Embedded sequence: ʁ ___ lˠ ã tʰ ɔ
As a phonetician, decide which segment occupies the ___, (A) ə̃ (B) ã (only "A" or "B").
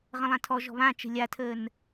A